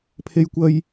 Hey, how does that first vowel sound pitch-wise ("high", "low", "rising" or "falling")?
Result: high